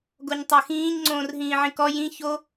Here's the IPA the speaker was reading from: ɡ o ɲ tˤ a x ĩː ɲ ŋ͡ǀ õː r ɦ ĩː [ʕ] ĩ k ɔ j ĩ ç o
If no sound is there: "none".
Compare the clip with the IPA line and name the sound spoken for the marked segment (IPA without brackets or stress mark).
ʕ